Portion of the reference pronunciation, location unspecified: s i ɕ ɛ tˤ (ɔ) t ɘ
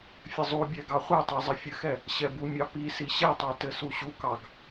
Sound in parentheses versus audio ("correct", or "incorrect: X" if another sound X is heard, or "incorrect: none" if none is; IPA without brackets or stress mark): incorrect: ɑ